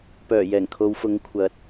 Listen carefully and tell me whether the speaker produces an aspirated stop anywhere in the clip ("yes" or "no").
yes